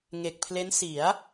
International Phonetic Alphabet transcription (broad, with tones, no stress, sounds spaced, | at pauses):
ŋ e˨˩ k̚ pʰ l e˦˥ n s i˩˦ a̯